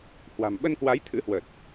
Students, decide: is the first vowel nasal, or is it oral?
oral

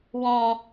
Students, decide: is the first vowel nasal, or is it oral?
nasal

